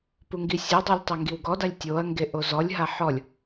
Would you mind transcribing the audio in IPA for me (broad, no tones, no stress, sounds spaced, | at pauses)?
p u ŋ ɡ i sʲ e dˤ o lʲ tˤ ɛ ŋ ɡ i w ɡ ɔ d a lʲ tʲ o ɐ̯ ŋ ɡ e ʔ o z ɔ lʲ ɦ a ħ ɔ lʲ